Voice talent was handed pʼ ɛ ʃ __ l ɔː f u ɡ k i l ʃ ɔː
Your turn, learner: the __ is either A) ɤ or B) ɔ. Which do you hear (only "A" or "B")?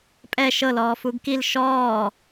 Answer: A